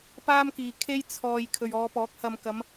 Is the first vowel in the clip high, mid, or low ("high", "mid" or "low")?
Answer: low